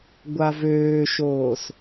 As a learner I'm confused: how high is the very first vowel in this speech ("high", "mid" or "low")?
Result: low